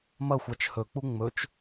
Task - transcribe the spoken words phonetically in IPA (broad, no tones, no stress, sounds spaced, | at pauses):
m ɐ xʷ a t͡ʃ h ɵ k͡p u ŋ͡m ɵ t͡ʃ